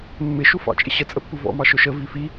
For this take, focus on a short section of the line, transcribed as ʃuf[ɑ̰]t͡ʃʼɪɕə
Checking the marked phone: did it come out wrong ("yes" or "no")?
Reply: no